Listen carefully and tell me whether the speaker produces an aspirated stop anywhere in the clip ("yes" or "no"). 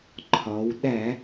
yes